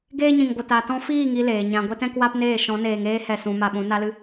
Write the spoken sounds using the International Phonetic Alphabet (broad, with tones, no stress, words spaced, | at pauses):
ɡeː˦ɲĩ˨ŋɡʷə˨ ta˨tɔ̃˧fiː˦˨ ŋi˦leː˨ɲã˧ ɡʷɛ˦tɛ̃˦kwa˦pneː˦˨ ʃɔ̃˨˦neː˨ŋeː˦hɛ˨ sũ˨˦ma˧ɓũ˨˦ na˦lɨ˧